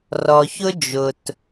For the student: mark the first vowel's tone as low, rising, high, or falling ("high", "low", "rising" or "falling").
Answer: low